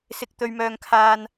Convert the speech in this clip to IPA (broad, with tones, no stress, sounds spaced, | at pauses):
s ɪ˨ k̚ t̪ ɵ˨ ɥ m œː˨ ŋ kʰ aː˧ n